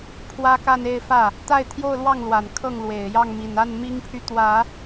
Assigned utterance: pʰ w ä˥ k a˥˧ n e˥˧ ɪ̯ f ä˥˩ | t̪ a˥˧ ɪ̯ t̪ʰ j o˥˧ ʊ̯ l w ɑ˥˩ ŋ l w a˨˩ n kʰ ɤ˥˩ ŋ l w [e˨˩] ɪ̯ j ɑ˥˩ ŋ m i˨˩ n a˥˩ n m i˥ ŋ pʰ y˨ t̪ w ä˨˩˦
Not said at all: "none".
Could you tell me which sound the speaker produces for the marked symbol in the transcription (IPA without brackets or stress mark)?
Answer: e˨˩